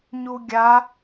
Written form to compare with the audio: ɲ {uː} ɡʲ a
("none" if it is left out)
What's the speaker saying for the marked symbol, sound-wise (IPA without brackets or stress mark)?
u